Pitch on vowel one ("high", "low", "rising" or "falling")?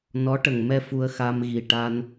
rising